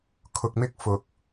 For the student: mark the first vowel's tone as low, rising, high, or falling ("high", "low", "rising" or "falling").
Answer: low